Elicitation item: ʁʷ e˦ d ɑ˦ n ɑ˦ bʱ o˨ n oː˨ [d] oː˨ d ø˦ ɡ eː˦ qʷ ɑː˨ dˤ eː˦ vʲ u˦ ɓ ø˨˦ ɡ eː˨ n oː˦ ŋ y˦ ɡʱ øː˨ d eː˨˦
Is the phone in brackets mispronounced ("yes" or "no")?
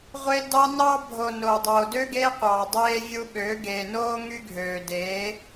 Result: yes